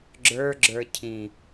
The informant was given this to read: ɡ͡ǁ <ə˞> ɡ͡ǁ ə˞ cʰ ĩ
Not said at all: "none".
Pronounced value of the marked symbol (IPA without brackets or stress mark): ə˞